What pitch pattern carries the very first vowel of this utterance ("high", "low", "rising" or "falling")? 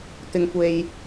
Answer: low